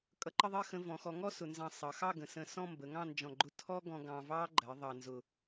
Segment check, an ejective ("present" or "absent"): present